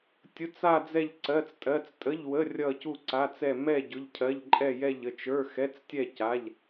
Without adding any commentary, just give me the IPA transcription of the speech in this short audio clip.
tʲ ʊ˧˥˧ t͡s a˥˧ d͡z ɛ˥˧ ʎ ǀ ɜ˧˥˧ t͡s tʼ ɜ˧˥˧ t͡s tʼ ə˧˥˧ ʎ w ə˧˥˧ rʲ ʌ˥˧ c u˥˧ ǀ a˧˥˧ t͡s ɛ˥˧ m ɛ˥˧ ɟ ʊ˧˥˧ ʎ cʰ ɜ˧˥˧ ʎ ǃʼ ɛ˥˧ j ɛ˥˧ ʎ ə˥˧ t͡ʃ ə˞˧˥˧ x ɛ˧˥˧ t͡s tʲ ɛ˥˧ c a˧˥˧ ʎ

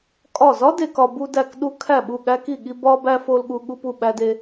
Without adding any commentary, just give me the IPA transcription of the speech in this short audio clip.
kʼ ɒ˧˩ z ɒ˦˥ d e˧ k ɒ˧ b u˧ d æ˧˩ k ɗ u˧ kʰ æ˧˩ ɓ u˧˩ ɠ æ˧ k i˧˩ ɠ i˧ b ɒ˧ b æ˧ f o˧ l ɠ u˧ ɠ u˧ p u˧˩ ɓ æ˧ d e˧

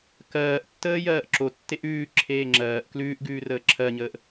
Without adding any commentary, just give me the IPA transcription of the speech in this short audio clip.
k ɜː ʔ tː əː j ɜː ʔ ǁ o tː e ʔ ʉː ǁʰ eː ŋ͡ǁ ɜː ʔ k l ʉː ʔ ɡ ʉː r əː ǁʰ ɜ ɲ əː ʔ

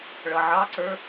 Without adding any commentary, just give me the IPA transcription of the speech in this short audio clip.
ɭ ʌ ʕ ɑ ǀ ə˞

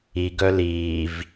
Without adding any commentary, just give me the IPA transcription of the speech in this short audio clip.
i ɡ œ l iː v

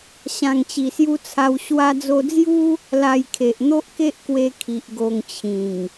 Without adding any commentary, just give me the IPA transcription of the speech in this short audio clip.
ɕ ã˨˩ ŋ t͡ɕ i˨˩ s j u˧ t͡sʰ a˧ w ɕ w a˧ d͡z o˧ d͡z j u˦ | l a˧ j kʰ e˨ ʔ n̪ o˦ ʔ k e˦ ʔ k w e˧ kʰ i˨ ʔ ɡ o˧ ŋ t͡ɕʰ ĩ˨˩ ŋ

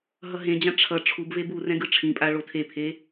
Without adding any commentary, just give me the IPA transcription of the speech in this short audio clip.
ɦ ʌ ɦ ẽ d͡ʑ ã ʈ͡ʂʰ ʌ ʈ͡ʂʰ u b v e b u r ɛ̃ ɡ ɯ ʈ͡ʂʰ ĩ pʼ a ɭ o tʰ e pʰ e

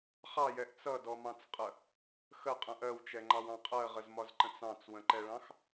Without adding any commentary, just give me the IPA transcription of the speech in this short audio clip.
χ ɑ j ɛ ʔ t͡s ʌ d ɔ m ɑ̃ t͡s qʼ ə | x ə qʼ ə̃ ʔ ɜ w t͡ʃ ɛ ŋ͡ǃ ɑ w ɑ̃ qʼ ɜ ʁ ə z m ɒ z ǃ ə̃ t͡s ɑ̃ t͡s w ə̃ ǃ ɛ ɭ ɑ̃ x

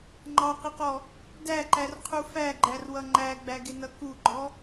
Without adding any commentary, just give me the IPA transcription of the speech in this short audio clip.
ŋ͡ǃ ɑ q ɪ q ɔ | d æ ǃ æ r qʰ u f æ ɡ͡ǃ æ r w ʌ ŋ͡ǃ æ ɡ͡b æ ɡ ɪ n ʌ k u ɡ͡ǃ ɔ

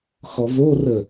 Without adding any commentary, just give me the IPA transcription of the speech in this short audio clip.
x ɔ v o r ə

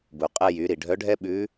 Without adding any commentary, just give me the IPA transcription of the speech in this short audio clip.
b u˩ qʼ ɛ˧ j y˩˧ ɾ i˩ ɖʱ œ˧˥ ɖʱ ɛ˥ ɓ ʉ˧˥

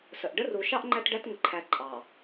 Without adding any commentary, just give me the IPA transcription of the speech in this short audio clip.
s ə˨ ʔ ɖ ə˦ r u˨ ʃ ɑ˦ ʔ ŋ͡ǃ æ˦ t ɖ æ˦ t ŋ ə˨ ǃʰ æ˨ ǃʼ ɑ˨

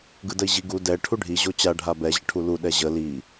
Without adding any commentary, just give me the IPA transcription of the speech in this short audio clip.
ɡ ɯ d ə i̯ ʑ i ɡ u d ɛ ʈʰ u ɖʱ i ʑ o t͡ɕ a ɖʱ a b ɛ ʑ ə ʈʰ u l u ɗ ɛ ʑ ə l i

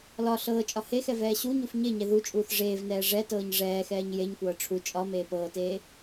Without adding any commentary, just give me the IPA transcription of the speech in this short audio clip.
l ɒ ɬ ɤː t͡ʃʼ ɒ h e x ɛ v ɛː ɕ u ɲ u f ɲ e ɲ ɛ ð u t͡ʃʼ uː θ ʐ eː v n ɛː ʐ ɛ t ɤː ɲ ʐ ɛː x ɛː ɲ j e ɲ kʷ ɤː ʈ͡ʂʰ u t͡ʃʼ ɒ m eː p ɤː t eː

